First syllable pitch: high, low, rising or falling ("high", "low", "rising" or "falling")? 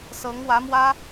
rising